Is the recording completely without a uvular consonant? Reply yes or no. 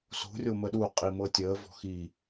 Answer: no